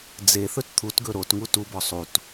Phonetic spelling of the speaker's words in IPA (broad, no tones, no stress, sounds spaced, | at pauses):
d͡z e θ ɵ t t̪ʰ u t ɡ ɵ ɾ o t ŋ u t u b ɔ sˤ u t